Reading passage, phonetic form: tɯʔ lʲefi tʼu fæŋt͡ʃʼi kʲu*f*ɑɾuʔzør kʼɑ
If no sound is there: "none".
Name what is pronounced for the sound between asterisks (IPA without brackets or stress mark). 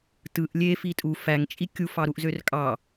f